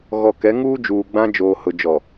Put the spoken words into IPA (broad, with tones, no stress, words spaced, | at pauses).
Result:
ɣɔ˨ kɛ˨˦ŋuː˦d͡ʒuː˨ ɡ͡bã˦ d͡ʒoː˨hʊ˨d͡ʒɔ˨